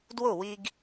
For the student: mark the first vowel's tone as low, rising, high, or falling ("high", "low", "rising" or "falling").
falling